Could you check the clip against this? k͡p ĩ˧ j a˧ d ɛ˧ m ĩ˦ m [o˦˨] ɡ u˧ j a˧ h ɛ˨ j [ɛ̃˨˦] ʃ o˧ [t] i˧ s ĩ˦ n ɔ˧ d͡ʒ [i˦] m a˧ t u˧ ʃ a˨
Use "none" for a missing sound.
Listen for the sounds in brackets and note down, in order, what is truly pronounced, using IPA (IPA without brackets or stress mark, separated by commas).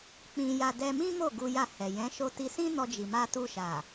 o˦˨, ɛ̃˨˦, t, i˨